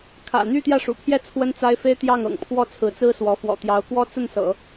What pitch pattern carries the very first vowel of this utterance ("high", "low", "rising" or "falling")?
low